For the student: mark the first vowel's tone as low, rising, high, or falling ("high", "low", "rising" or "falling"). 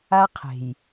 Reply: high